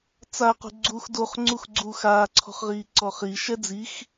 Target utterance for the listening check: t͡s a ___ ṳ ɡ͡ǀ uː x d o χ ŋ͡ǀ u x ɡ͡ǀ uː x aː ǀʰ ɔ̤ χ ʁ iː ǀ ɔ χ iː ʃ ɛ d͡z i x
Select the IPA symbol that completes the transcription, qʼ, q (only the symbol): q